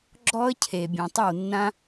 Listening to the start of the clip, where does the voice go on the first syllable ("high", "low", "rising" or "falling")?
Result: high